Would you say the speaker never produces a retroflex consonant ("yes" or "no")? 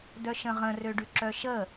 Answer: no